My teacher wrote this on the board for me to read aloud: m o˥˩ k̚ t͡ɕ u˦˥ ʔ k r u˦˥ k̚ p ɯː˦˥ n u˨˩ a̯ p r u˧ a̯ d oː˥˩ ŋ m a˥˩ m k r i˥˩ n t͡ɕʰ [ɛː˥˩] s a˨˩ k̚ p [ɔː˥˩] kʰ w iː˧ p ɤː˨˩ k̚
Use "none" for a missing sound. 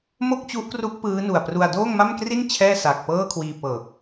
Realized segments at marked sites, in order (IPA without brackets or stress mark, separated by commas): ɛː˥˩, ɤː˥˩